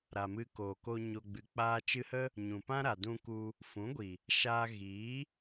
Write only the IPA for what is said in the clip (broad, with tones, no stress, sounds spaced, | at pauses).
ɾ a˨ m ɨ˧ k oː˨ k o˧ ɲ o˨ ɡ͡b ɨ˨ k͡p aː˧ t͡ʃ ɨ˧ h ə˦ | ɲ ũ˨ p ã˦ ɾ a˨ d ũ˧ k u˧ | f ũ˨˦ ɡʷ i˨ | ʃ aː˧ ɣ iː˨˦